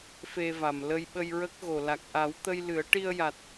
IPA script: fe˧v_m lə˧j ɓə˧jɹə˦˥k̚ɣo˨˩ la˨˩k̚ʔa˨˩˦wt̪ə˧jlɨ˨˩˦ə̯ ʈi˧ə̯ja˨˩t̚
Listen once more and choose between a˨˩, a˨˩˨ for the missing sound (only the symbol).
a˨˩